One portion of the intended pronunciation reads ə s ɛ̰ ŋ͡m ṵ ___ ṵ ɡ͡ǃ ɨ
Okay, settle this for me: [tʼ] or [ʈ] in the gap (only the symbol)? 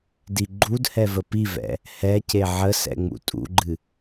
tʼ